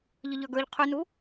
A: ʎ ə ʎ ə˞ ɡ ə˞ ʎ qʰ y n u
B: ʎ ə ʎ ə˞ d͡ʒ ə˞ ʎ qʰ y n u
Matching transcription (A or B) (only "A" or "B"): A